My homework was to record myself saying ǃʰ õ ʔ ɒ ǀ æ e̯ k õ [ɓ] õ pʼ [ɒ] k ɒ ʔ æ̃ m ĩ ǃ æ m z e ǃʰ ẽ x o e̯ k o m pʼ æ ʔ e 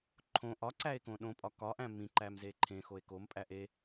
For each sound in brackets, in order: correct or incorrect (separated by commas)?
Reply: incorrect, correct